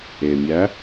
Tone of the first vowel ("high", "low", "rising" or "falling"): low